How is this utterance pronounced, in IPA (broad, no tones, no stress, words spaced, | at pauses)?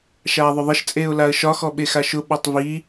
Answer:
ʃaːðˤʊðˤəʃ t͡sʼeːʊ̯laə̯ʃɒ xɔɓexaʃʊ ɓɒtˤvi